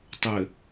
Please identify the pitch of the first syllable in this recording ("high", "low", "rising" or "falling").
low